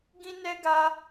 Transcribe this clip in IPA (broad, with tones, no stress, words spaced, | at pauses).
ɡĩ˦nɛ˦ɡa˦